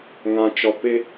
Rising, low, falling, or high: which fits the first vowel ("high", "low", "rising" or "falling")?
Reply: low